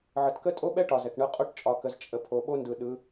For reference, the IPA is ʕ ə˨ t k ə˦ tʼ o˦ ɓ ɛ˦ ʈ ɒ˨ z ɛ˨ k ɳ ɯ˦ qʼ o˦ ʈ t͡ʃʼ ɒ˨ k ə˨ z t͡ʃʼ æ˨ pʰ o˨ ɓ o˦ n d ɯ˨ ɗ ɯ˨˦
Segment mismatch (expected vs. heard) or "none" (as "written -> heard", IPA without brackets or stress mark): æ˨ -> ə˨